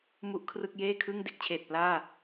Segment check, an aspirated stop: present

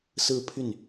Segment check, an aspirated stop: present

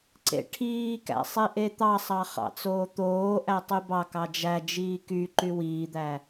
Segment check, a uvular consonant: present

